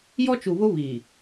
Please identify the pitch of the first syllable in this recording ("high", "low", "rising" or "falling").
high